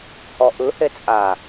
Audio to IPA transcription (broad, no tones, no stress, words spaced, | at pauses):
hɔʔɯ het͡sʼa